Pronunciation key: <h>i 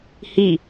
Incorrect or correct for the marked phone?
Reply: correct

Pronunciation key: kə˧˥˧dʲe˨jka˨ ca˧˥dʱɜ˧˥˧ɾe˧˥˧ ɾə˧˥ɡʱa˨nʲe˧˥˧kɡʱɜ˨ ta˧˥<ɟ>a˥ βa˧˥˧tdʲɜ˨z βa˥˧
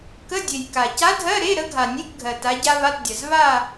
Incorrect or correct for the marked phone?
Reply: correct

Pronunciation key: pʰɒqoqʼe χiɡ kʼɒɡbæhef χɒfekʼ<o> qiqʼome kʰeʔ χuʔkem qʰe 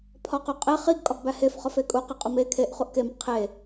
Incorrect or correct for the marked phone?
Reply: incorrect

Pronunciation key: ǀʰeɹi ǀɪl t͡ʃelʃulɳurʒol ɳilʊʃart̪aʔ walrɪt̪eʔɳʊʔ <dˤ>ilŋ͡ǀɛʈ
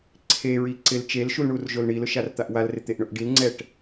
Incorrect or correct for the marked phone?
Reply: incorrect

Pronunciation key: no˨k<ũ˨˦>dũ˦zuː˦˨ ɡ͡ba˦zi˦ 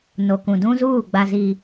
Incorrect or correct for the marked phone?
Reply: incorrect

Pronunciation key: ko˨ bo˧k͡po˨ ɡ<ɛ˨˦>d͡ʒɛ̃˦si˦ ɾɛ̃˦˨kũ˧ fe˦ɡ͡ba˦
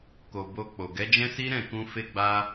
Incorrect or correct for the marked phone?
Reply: correct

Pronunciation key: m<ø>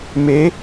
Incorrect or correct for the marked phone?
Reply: incorrect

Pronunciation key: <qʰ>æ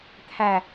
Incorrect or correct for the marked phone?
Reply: incorrect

